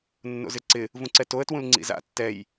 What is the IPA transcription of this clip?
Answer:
nːo̰zɪǀɪ | vũǀɛtoə̯ twũlŋ͡ǀḭza̰ tːɛj

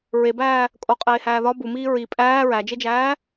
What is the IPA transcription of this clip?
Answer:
ɹebæː | kʼoqʼeːhæː ðɒ bumiː ɹi pʼæː ɹæd͡ʒed͡ʒæː

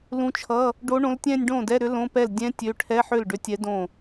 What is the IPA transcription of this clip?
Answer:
lũ˧˥t͡ʃʰʌ˧˥˧ | ɖo˧˥ɳõ˧˥l tʲɛ̃˥˧nʲ ɖõ˥˩dɛ˧˥˧ ɾʏ˧˥lõ˧˥˧pɛ˥˩l dʲɛ̃˧˥ tʲø˧˥˧ ʈʰɛ˧˥˧ħʏ˥˩lɖʏ˧˥tʲɛ˧˥ dõ˥˩

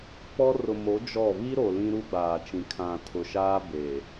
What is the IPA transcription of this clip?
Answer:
k͡pɔ˦ rʊ˨mo˨˦ d͡ʒɔ˦˨ βi˦ɾo˨ lĩ˦ ɾu˦ɡ͡baː˨ t͡ʃĩ˨ kʰã˨tʰʊ˨ ʃaː˦be˨

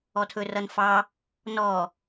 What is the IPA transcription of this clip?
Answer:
ɔtʰɵrʌnfɑ | nɔ

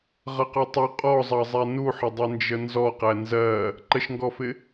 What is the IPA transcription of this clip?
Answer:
ʁʌqɔtˤu qʼɔzˤɑzˤæ nuħədˤʌnd͡ʒə nzɔqæ nzɜ | ǃəʃŋɡɔfɪ

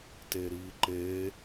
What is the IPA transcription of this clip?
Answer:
teɾiːǃeː

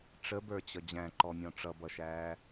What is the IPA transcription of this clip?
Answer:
ʈ͡ʂəbə˞t͡ɕʌ d͡ʑæ̃ǃɔmʲɔ̃ ʈ͡ʂʌbʌʃæː

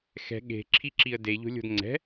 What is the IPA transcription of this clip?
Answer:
xɛ̤ ɠe̤ǁʰiǁiə̯ deʎo̤lʲo̤d ŋ͡ǀɛ̤

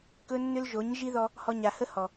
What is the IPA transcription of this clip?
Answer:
kɵ˦ nːʏ˦lʒo˨˦ɲ ʒi˦ ðɔ˧ | hɔ˧ɲa˨hə˦ hɔ˨

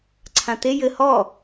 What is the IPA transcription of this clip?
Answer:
ǀʰãt̪e jɘ hɔ

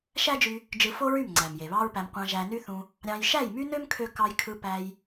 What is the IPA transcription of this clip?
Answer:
ʃæ˦d͡ʒy˧ | d͡ʒɯ˧fo˦ɹy˦˨m ŋ͡ǀæ˨mje˨βɑ˦ɹpæ˧m qʷɑ̃˧ʒæ˧ny˦θũ˧ | ɾʲɑ̃˧j ʃæ˦˨jmy˦nø˦m kʰø˦ kɑ˧jkʰɯ˧pæ˧j

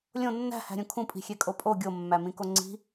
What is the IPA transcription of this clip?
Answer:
lʲõ nːæ̤hæ̤ɾʲũ kʰũpʼi̤xʲekʼo pʼo ɡʲomːæmĩko ŋ͡ǀi̤

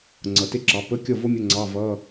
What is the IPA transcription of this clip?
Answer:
ŋ͡ǀʌ˨˩˦te˥ǁɑ˨˥ pə˧˥˧kʲʌ˥˨vo˥ mʲə˧˥˧ ŋ͡ǀɑ˧˥˧vʌ˧˥˧

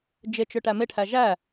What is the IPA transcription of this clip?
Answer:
d͡ʒɪt͡ʃʊ ʈæmɪʈʰæ ʒæ

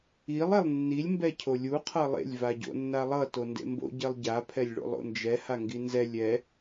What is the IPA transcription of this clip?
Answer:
ilˠ elˠnːilʲ mbɛcʰolʲu qʰʌlˠḛlʲ vaɟo̰nːalˠʌ tondḛmbo̰ ɟɛlˠɟa pʰɛlʲɭo̰lˠo̰nd͡ʒɛ haŋɡinzɛ lʲɛ

